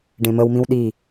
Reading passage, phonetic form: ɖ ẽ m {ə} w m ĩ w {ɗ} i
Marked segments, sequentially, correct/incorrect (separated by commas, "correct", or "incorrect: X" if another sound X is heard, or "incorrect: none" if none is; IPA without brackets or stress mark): correct, correct